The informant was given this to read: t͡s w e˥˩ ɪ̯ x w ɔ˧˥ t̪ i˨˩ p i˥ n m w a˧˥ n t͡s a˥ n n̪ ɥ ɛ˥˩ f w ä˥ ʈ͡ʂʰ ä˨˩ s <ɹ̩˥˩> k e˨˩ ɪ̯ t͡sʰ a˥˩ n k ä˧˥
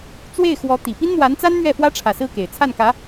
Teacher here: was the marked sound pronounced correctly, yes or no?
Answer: yes